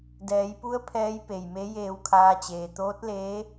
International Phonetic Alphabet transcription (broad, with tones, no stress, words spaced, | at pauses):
dɛː˩˧jpu˧˥ə̯ pʰɛː˧˥jpe˩jme˧˥ jeː˧wkʰaː˧t͡ɕeː˩ t̪oː˧˥t̚leː˧˥